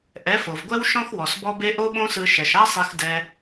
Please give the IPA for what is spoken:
ʔ ɛ˨˦ f o˨ v ɡʷ ɛ˦ w ʃ ɔ̃˦ x w ɔ˨ s b ɔ˦ b e˦ ʔ o˦ ɓ õ˦ s ɯ˧ ʃ ɛ˨ ʃ a˦ sˤ e˧ x d ɛ˧

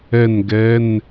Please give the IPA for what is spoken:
ɛ˥˧ n ɡ ɛ˧˥˧ n

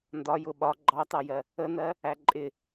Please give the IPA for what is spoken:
n d ɒ j ʊ ɓ ɒ ɡ͡ǃ ɑ t ɑ j ɜ | ə n ɜ | æ ǃʼ ɪ

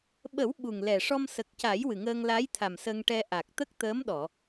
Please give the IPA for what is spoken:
ɓ ə˨˩˦ w ɓ u˨˩ ŋ l ɛ˨˩ ʂ ɔ˧ m s ə˨˩ k̚ c a˨˩˦ j w ɨ˨˩ ŋ əː˧ ŋ l a˧˥ j t̪ʰ a˨˩ m s ə˧ ŋ ʈ ɛ˧ ʔ a˨˩ k̚ t̪ ə˦˥ k̚ t̪ əː˧˥ m ɗ ɔ˨˩˨

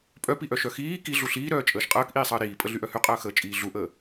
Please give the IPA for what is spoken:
pʼ œ p i ʔ œ ʃ œ x iː k i ɮ u ɬ iː ɾ œː t͡ʃʼ əː ʃ qʼ əː k ʔ iː sˤ əː ɾ iː pʼ ə ɮ y ʔ œ h y qʼ əː x əː t͡ʃʼ iː ɮ u ʔ əː

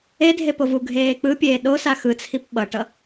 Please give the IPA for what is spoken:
e dʱ e p o v u ɡʱ eː k͡p ɯ pʲ eː ɗ o s a x ɯ t͡sʰ i p ɓ ʌ ʈ ʌ

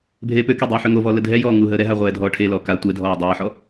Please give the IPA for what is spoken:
bʱ eː p ø k e dˤ uː ħ ø ŋ o v ɔ l ə dʱ ɛ j ɔː ŋ uː ɦ əː ɾ ɛ ɦ a ʁʷ ɛː dʱ ɔː ʈʰ e l ɔː k a tʷ ɛ dʱ ɔː dˤ ɛː ħ ɔ

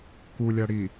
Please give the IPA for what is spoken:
k u lʲ a ɽ i

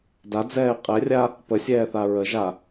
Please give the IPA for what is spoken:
d a d͡z ɛː qʼ ɛ rʲ a | p ə sʲ ɛː θ a ɹ ə ʒ a

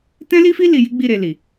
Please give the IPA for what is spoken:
t ɛ̃˦ l i˦ f i˦ l i˧ j i˦ ɡ͡b i˦˨ ɾ e˧ l i˨

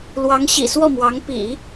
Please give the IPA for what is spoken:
l w ɑ˧˥ ŋ ɕ ḭ˨˩ s w ɔ˥˩ m w ɑ˧˥ ŋ p ḭ˨˩˦

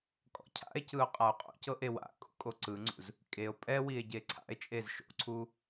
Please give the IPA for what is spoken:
kʼ ɔ̰ cʰ a̰ e̯ c ɯ o̯ qʼ a o̯ qʼ o̰ c ɤ ʔ e w a̰ kʼ ṵ kʼ o ǀ ɯ ŋ͡ǀ ṵ z | kʼ e o̯ pʼ ɛ w i e̯ ɟ e ǀʰ a̰ e̯ t͡ʃʼ e z ʃ o̰ ǀʰ u

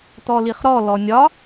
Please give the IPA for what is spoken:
t ɔ l i χ ɾ ɔ l ɔ nʲ ɒ

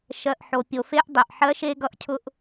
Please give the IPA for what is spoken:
ʃ ɜ˨ ʔ ħ o˨ pʲ o˨ f e˦ ʔ dˤ i˨ ʔ ħ ɜ˦ ʃ e˧ ɡ ʌ˧ ʔ cʰ ʊ˧ ʔ

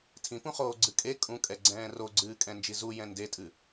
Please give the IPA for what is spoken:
tʰ ĩ p ũ χ oː ɡ͡ǀ ɨ kʼ e kʼ ũ kʼ ɛ ɡ͡ǀ ɛ̃ː r o ɡ͡ǀ ɨː kʼ ɛ̃ n d͡ʒ i z u j ɛ̃ n d e tʼ ɨ

